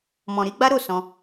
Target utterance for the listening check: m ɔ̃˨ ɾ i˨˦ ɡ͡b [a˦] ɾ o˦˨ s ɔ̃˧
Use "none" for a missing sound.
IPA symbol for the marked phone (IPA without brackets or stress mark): a˦